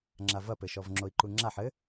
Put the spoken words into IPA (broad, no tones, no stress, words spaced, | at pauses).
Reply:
ŋ͡ǁavɐpɘʃɔv ŋ͡ǁoi̯ǃuŋ͡ǁaħ ɘ